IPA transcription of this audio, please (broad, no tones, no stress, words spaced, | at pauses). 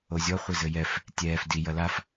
ozʲɔ χʷezɘjɛf | tʲɛːf di jɐlaf